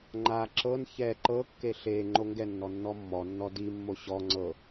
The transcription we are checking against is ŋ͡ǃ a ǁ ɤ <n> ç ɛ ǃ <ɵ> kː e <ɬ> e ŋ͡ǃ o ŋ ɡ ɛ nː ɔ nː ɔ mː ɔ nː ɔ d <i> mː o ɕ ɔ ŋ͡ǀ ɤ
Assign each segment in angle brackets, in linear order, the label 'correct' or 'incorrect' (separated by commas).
correct, incorrect, correct, correct